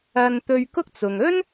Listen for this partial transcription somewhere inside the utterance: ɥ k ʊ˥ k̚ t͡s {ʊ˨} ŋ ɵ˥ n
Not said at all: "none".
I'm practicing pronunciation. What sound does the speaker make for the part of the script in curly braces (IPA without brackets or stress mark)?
ʊ˨